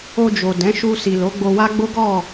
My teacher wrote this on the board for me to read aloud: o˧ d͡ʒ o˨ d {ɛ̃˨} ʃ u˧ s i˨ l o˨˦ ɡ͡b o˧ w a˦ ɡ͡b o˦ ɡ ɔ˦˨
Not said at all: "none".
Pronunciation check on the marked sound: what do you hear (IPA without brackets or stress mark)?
ɛ̃˨˦